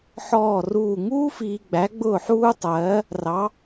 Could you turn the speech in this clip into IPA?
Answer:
ħɔː˥˩ruː˥˩ ŋuː˥fiː˨ɡ͡bæ˩˥ ɡ͡bʊː˥˩ħuː˥tˤɜː˩˥ | rɑ˩˥

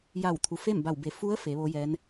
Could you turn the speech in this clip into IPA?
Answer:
ja˧˩wt̪ʰu˩ fe˥˨mba˧˩wbe˩˧ fu˧˥ə̯ fe˩˧ʋo˧˥jɛː˧˥n

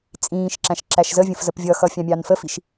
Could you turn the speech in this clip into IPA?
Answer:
t͡sʼĩːʃ ǁæ̃ʃǁæʃzəvʲə̃f zəpvʲʌxʌ fʲɑ̃mʲɑnfəfiʃ

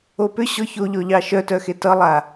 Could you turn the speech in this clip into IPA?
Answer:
opʏ ɕɔçoʎɔʎɑ ʃœtœxe tʌlˠa

